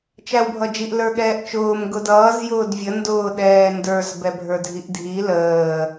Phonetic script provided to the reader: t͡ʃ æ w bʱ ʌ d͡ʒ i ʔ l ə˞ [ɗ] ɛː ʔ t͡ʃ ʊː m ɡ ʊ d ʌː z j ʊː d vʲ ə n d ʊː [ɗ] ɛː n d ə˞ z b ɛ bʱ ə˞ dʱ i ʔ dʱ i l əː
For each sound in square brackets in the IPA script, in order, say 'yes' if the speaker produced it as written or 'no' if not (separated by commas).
no, yes